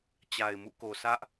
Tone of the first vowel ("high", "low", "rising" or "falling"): low